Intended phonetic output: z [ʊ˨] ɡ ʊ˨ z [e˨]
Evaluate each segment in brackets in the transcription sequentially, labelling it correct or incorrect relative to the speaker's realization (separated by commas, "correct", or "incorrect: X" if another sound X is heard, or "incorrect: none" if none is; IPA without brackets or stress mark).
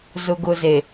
correct, correct